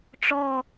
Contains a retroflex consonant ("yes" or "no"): yes